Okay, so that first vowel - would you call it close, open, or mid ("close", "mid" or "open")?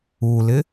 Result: close